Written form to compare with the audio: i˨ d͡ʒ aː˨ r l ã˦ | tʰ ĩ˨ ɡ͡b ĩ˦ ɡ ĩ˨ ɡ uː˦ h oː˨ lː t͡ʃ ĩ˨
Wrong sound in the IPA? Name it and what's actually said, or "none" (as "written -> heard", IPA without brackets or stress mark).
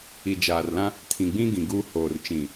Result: lː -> r